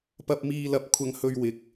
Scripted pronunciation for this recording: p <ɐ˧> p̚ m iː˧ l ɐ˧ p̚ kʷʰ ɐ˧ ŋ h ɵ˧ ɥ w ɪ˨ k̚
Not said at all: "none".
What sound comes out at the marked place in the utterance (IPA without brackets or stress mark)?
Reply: ɐ˧